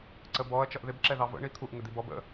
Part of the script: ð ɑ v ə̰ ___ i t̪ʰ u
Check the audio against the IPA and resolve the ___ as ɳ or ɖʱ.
ɳ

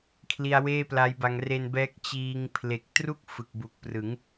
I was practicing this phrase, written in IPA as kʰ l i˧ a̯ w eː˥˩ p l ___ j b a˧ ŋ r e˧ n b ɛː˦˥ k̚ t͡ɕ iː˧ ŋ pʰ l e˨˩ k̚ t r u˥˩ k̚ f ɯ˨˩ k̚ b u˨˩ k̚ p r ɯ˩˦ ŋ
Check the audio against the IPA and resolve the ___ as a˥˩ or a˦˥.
a˦˥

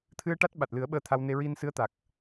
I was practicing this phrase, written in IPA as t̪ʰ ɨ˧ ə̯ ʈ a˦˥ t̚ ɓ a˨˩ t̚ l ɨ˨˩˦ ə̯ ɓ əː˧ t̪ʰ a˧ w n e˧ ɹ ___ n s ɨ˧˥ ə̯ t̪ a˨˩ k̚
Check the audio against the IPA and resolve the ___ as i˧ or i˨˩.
i˧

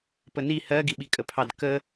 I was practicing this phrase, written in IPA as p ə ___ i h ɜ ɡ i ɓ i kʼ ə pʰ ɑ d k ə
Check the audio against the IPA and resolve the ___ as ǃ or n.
n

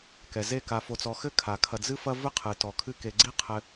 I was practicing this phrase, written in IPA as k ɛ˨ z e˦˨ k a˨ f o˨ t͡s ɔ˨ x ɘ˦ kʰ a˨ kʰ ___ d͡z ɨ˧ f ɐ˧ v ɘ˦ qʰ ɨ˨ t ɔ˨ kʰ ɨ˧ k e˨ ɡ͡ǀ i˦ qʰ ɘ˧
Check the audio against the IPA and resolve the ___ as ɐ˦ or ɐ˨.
ɐ˨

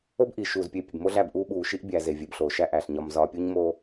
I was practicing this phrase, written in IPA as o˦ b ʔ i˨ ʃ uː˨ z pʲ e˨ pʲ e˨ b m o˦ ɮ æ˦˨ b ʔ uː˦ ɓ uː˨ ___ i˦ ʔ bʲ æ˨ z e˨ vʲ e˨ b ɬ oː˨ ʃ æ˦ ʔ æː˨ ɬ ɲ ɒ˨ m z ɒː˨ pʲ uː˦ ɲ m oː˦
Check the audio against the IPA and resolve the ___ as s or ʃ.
ʃ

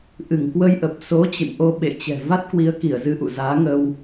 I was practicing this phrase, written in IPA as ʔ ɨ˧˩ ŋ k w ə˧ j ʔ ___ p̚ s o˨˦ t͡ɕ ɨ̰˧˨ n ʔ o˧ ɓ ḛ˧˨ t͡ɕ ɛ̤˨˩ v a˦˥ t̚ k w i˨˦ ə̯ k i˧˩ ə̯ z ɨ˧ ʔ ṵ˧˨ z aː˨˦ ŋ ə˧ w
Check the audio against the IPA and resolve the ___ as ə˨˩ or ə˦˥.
ə˨˩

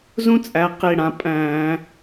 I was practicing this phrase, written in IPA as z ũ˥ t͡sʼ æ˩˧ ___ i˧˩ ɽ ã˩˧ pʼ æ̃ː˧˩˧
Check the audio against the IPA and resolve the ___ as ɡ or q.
q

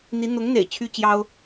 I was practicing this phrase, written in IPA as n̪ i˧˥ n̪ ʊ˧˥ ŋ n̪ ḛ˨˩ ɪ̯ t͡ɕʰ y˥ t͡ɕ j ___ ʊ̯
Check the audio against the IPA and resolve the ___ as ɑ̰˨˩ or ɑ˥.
ɑ˥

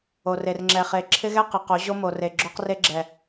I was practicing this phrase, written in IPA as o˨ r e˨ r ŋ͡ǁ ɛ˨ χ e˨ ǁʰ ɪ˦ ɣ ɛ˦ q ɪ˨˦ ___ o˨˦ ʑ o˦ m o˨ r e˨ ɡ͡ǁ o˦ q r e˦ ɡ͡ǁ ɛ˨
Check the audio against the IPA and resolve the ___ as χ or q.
q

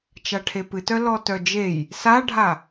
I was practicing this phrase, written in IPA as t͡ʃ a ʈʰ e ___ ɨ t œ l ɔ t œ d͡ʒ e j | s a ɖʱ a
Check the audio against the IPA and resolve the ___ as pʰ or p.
p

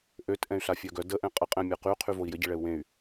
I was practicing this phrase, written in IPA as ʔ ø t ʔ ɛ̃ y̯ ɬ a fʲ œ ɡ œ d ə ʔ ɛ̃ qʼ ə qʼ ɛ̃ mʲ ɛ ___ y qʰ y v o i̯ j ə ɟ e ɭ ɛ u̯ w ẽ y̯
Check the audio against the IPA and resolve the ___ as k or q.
q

